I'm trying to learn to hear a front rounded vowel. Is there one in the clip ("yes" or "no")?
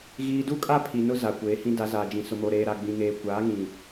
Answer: no